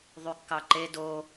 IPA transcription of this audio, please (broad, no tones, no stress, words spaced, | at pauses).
ðˤykːɑǃe do